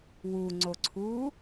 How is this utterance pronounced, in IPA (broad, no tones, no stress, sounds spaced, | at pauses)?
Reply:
w u ŋ͡ǀ o ǀʰ uː